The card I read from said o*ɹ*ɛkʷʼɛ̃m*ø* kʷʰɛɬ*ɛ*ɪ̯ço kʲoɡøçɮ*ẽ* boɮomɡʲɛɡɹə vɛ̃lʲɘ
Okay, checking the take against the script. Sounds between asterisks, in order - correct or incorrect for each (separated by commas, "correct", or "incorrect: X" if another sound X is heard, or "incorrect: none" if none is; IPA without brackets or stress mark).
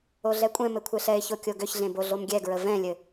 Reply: incorrect: ɮ, incorrect: ɘ, correct, correct